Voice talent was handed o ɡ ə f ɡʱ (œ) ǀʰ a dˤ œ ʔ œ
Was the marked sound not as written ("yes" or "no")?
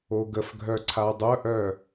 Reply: no